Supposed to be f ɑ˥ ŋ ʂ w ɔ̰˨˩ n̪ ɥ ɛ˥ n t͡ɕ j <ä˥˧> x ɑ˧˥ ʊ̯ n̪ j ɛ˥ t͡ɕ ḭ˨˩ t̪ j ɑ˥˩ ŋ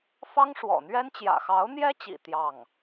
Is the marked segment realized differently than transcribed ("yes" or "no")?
yes